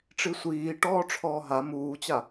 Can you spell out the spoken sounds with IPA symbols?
ʈ͡ʂisʷiː ʈɔːʈ͡ʂʰɔːɦa muːt͡ɕa

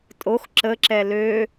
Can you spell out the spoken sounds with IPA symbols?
tʼox ǁəǁɛ lø

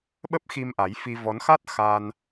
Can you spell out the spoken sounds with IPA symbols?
ɓə˦˥p̚xi˧m ʔa˨˦jfi˧ vɔ˨˦nxa˦˥t̚ xa˧n

